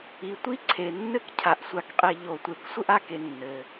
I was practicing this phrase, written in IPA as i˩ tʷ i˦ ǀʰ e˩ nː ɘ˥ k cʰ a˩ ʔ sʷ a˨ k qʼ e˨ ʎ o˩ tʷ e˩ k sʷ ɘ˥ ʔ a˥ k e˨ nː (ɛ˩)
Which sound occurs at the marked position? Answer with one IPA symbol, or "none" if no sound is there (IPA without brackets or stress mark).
ɘ˩